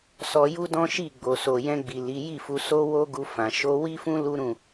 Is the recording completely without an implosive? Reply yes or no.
yes